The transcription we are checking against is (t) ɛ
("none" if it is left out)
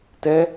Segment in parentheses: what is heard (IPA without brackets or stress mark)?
t